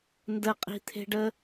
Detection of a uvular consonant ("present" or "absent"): present